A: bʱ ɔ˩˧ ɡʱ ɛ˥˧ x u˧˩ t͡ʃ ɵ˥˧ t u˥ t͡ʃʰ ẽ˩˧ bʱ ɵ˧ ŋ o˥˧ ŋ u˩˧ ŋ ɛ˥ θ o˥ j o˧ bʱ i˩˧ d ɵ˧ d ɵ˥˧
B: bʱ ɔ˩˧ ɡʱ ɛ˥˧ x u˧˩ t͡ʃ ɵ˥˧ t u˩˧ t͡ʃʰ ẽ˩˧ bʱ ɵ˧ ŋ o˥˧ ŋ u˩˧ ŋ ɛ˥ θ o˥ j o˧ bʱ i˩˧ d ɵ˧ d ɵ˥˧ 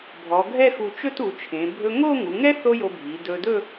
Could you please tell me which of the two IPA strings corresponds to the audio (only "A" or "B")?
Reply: B